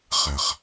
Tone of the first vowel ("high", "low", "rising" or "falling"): low